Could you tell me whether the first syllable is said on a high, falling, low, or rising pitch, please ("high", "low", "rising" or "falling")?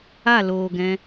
falling